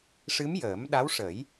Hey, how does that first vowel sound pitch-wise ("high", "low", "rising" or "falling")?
rising